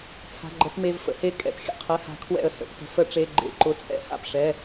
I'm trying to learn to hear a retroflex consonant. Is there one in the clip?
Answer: yes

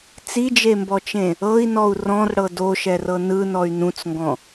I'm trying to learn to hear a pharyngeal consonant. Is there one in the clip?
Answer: no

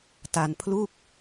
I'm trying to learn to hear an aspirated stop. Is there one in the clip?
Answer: yes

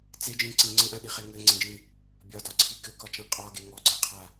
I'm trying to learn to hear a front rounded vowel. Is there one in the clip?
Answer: no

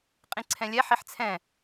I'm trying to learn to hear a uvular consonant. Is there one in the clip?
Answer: yes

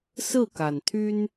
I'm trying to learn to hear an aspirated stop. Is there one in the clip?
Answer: yes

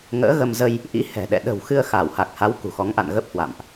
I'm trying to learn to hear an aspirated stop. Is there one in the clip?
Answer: no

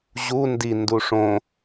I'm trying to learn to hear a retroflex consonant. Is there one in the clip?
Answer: yes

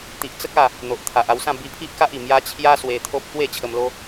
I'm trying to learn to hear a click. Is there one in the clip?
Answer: no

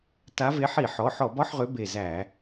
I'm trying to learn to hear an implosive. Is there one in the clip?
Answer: no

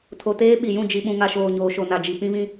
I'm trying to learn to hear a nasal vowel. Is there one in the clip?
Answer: yes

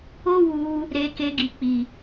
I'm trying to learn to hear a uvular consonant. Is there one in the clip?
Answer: no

